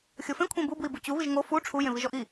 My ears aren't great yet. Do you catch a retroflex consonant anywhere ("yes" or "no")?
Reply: yes